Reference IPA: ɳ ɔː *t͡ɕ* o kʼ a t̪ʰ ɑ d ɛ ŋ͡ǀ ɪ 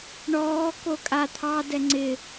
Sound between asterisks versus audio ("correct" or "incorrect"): incorrect